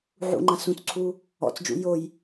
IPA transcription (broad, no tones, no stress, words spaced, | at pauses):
ʕṵŋ͡ǃã sũt͡sǀʰu | ɔ̰t͡sd͡ʒṵ joj